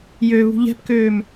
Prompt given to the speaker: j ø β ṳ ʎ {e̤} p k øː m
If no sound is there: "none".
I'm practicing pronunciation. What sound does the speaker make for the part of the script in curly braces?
ɛ̤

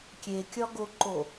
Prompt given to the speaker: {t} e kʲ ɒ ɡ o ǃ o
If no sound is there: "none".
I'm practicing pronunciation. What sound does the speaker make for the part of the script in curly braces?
kʲ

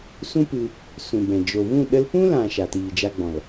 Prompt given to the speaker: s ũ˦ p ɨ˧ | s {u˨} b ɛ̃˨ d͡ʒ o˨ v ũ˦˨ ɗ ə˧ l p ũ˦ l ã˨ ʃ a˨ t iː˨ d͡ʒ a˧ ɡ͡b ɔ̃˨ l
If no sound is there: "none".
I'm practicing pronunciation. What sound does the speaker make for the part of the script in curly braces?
ũ˨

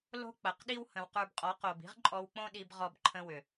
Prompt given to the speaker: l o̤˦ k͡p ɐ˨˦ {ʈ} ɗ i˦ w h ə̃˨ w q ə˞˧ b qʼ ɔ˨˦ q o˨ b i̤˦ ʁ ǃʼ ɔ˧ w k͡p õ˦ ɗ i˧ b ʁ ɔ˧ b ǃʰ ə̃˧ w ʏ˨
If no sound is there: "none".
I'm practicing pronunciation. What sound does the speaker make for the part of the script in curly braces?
q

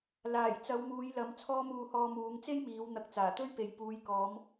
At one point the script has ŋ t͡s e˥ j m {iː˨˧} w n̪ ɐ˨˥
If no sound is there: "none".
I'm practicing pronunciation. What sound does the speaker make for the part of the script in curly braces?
iː˨˧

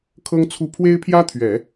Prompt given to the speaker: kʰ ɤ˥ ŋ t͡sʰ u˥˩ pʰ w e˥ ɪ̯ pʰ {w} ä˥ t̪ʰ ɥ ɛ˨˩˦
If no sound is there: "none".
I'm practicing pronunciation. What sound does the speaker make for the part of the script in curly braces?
j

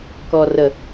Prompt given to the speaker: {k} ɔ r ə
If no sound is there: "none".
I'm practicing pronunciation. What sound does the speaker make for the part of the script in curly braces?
k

